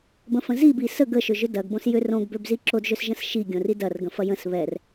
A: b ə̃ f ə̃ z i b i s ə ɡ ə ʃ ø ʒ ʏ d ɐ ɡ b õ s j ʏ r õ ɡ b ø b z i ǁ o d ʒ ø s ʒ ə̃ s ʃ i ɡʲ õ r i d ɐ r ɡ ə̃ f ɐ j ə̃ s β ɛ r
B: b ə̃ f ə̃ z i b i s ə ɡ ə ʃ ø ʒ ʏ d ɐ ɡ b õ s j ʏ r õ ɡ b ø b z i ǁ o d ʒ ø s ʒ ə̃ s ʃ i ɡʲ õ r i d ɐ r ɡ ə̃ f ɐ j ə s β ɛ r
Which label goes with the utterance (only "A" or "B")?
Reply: A